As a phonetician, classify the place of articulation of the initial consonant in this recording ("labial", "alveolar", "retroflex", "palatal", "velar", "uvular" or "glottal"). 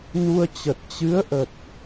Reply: alveolar